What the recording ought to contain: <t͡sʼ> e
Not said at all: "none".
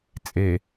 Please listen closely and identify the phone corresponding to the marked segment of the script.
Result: t͡sʼ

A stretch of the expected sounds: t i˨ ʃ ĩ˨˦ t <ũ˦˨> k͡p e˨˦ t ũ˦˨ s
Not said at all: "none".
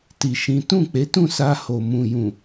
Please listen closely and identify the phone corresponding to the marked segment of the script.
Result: ũ˦˨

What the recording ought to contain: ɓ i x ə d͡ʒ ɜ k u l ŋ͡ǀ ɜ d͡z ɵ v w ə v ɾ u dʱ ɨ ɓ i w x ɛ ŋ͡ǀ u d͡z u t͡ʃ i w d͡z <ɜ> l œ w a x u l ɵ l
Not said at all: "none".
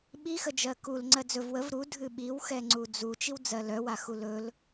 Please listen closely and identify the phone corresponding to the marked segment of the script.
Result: ɜ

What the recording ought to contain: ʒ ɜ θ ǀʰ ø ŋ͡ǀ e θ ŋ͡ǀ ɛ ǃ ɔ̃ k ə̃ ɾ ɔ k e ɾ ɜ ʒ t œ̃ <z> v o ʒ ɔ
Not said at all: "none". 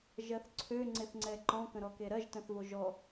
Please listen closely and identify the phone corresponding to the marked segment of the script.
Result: θ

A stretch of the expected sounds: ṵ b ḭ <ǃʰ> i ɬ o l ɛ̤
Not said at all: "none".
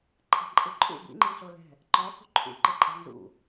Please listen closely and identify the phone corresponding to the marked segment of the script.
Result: ŋ͡ǃ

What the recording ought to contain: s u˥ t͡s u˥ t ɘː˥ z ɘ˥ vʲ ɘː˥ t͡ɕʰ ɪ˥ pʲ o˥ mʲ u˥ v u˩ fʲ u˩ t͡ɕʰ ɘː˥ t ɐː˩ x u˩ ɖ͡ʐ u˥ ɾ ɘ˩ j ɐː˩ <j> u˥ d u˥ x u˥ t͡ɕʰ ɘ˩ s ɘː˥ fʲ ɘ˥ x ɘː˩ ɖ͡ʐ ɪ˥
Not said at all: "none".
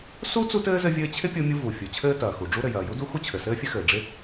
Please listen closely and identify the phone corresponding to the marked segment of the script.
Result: j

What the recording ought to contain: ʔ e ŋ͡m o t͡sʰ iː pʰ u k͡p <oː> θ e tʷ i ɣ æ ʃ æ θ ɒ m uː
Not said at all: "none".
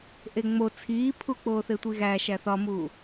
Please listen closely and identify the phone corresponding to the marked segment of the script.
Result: oː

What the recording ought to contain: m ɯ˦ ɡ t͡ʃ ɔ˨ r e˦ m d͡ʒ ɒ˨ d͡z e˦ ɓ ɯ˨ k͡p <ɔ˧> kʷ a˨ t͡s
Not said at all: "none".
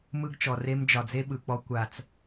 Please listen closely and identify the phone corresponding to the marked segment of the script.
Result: ɔ˧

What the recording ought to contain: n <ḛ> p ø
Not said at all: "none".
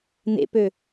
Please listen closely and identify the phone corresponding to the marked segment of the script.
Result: ḛ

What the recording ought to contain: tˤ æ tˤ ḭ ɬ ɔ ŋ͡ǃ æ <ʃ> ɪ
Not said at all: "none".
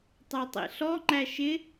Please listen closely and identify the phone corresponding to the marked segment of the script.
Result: ʃ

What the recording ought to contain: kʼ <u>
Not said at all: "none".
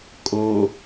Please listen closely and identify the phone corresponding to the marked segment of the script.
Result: o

